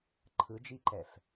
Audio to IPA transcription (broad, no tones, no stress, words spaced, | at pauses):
ǃʰɯd͡ʒiǃɛf